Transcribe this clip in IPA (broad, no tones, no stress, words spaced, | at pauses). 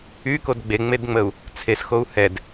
ykod ɡ͡beŋ͡medŋ͡məu̯ | t͡sʰesxou̯ hɛd